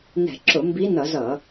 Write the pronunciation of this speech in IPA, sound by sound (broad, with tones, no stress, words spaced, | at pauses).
nɛ̤˧˩˧ǁʊ˧˩˧ mbi˧˥nʌ˧˩˧z ʌ˧˩˧